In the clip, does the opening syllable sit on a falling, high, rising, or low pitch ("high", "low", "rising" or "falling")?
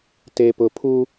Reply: low